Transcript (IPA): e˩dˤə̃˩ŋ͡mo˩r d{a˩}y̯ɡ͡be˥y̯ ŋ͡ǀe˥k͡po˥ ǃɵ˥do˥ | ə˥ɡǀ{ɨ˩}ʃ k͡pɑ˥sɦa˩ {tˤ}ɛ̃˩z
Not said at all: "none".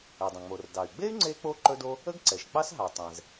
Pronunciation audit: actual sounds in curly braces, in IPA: ɑ˩, ɛ˩, tˤ

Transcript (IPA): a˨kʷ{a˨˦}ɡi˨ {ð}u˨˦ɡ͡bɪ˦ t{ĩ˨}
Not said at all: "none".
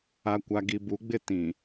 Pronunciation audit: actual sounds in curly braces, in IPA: a˨, b, ĩ˨

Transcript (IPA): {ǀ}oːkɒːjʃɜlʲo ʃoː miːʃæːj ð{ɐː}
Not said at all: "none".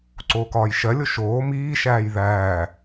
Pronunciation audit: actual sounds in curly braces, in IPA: ǀ, æː

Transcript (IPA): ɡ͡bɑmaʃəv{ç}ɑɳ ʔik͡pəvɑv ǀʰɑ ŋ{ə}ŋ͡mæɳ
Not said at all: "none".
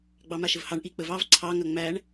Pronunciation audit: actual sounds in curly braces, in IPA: h, ɐ

